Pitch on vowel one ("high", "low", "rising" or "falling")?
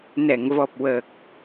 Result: low